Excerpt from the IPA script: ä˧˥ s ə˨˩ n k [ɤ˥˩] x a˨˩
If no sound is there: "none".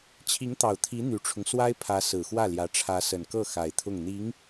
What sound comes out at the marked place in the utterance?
ɤ˥˩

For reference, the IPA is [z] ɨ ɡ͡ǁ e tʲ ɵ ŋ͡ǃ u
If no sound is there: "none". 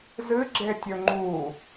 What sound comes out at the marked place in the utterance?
z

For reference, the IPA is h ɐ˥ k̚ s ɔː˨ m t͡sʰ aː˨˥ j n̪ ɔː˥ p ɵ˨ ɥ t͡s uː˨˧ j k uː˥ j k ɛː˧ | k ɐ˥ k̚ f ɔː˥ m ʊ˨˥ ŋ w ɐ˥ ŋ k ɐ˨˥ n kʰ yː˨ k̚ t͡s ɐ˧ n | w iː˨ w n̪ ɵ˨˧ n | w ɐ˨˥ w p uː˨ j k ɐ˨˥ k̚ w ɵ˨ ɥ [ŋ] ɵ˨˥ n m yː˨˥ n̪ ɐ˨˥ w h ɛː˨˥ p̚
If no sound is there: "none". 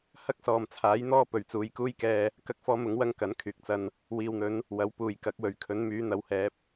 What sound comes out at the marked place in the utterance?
kʰ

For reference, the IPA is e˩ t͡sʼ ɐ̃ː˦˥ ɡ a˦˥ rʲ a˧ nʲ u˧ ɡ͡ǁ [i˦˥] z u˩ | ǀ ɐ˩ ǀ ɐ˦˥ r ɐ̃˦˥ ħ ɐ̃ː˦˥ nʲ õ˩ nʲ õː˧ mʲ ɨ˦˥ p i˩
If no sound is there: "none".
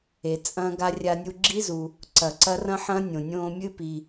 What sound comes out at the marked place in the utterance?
i˦˥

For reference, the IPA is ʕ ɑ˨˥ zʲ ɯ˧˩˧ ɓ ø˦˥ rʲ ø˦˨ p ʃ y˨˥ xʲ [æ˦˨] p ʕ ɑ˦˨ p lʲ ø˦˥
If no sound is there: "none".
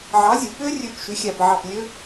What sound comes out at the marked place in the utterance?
æ˦˨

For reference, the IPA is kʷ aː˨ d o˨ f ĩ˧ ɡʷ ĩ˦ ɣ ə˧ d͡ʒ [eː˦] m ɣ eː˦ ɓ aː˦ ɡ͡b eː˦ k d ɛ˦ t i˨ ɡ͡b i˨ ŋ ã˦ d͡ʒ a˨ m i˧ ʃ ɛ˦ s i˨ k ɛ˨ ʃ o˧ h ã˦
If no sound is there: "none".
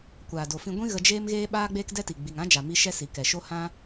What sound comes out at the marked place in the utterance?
eː˦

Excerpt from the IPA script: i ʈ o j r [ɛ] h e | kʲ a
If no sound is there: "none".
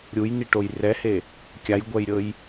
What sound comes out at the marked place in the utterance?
ɛ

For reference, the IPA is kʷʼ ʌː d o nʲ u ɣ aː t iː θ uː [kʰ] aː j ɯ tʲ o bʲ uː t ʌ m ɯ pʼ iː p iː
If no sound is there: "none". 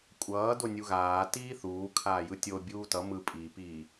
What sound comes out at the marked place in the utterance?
kʰ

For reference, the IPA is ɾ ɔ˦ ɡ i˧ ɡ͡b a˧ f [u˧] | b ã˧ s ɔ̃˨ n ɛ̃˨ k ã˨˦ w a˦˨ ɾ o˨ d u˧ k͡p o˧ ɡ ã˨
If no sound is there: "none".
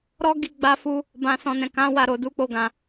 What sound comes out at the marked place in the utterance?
u˧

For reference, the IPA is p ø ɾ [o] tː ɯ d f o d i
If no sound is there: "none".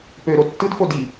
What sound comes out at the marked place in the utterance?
o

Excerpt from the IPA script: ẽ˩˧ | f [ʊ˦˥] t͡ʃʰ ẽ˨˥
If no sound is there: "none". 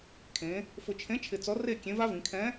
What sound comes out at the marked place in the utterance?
ʊ˨˩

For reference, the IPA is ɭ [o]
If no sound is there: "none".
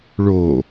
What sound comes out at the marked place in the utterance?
o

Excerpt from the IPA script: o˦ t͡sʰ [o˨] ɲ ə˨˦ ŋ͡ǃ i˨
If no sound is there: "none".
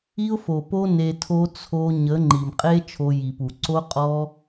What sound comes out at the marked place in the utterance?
o˧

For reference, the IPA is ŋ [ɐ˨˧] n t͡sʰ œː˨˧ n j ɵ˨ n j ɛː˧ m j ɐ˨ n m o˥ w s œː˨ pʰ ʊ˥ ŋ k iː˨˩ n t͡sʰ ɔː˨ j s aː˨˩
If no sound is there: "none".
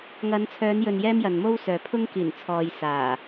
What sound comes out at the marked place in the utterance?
ɐ˨˧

